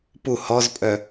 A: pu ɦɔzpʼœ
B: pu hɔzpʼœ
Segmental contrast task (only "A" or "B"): B